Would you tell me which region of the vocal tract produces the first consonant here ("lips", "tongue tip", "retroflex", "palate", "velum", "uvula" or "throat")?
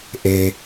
throat